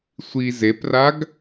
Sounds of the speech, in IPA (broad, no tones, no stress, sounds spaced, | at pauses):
sʷ i z e p r a ɡ